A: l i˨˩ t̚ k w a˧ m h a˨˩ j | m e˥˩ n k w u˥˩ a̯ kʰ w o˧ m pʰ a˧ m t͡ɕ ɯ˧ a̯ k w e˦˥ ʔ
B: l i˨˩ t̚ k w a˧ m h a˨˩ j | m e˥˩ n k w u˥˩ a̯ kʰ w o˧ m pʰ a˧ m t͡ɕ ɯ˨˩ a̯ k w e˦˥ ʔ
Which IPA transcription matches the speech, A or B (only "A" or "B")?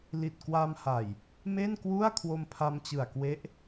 B